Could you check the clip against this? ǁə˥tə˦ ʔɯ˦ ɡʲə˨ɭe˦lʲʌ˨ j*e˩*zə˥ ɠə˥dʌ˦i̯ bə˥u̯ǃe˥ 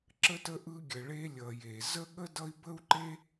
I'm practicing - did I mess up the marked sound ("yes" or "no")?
no